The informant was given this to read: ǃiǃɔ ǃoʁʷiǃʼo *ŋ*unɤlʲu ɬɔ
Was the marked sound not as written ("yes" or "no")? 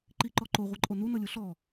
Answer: yes